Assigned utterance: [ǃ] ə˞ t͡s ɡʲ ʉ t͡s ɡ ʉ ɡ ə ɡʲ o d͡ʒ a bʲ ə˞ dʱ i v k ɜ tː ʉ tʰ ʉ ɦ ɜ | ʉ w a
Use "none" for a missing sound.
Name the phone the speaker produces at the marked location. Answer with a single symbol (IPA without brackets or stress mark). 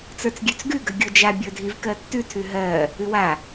t͡s